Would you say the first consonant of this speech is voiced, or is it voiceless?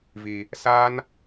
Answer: voiced